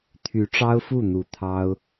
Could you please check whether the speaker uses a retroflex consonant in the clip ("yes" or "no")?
yes